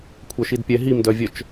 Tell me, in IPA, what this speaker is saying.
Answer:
kʷʰœʃidpʲɛ ɦimdœvʲœt͡ʃ

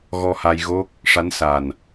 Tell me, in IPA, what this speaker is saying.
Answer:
ɣɔ˧ha˧j ɣo˦˥k̚ | ʂa˧˥nsa˨˩n

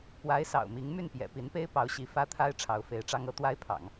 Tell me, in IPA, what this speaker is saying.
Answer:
pwa˧˥ɪ̯sɑ̰˨˩ʊ̯mi˧˥ŋ my˥˩npjɛ̰˨˩pi˧˥npe˥ɪ̯ pɑ˧˥ʊ̯ɕi˧˥ fä˥t̪ʰa˥ɪ̯ ʈ͡ʂʰɑ˧˥ʊ̯fe˧˥ɪ̯ʈ͡ʂɑ˥ŋ ɤ˥t̪wa˥ɪ̯pʰɑ̰˨˩˦ŋ

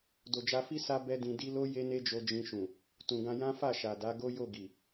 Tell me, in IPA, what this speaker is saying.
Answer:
do˨d͡ʒa˧fi˦ sa˦ bɛ˦dĩ˧di˦ lo˦ je˦ne˦d͡ʒo˧ d͡ʒĩ˧ʃũ˨ | tũ˨ɡã˧ jã˦fa˦˨ ʃa˨da˨˦ɡo˦ jo˦˨ɡi˨

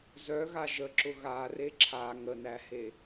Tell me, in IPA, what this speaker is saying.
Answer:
zœɣa ʒəǁʊ ɣare ǁʰa ŋənæhe

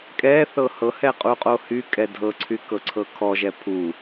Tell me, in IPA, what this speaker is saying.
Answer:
kʼɛ θɤhɤhɛ qʼuqʼohykʼɛ dʱɤǀʰy kɤǀʰɤkʰɔʒɛ pʰu

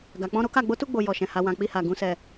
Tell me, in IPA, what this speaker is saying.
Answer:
ɡa˨k͡pɔ̃˧ ɾo˦ka˦˨ ɡ͡bo˨˦tu˧ɡ͡bo˨ jɔ˨ʃɛ̃˨ ha˨wã˨ k͡pi˧ha˨ ɡũ˨sɛ˨

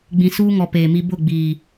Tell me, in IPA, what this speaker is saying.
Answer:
ɡ͡bĩ˨suː˦ŋɔ˨ peː˨mi˦ bʊ˦˨ɡ͡biː˨

